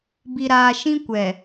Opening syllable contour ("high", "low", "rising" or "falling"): low